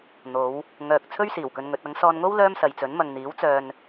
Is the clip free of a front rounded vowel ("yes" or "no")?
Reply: no